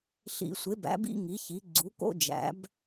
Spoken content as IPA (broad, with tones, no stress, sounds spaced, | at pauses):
ɬ ḭ˧˩˧ sʷ e˩˥ b æ̰˩˥ b ḭ˥ ŋ i˩˥ ç i˩˥ ɡ͡ǀ u˩˥ k o̰˥ d͡ʒ æ̰˩˥ b